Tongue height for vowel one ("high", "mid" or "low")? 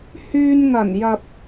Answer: high